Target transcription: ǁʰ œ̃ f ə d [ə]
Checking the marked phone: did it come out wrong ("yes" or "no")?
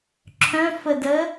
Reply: no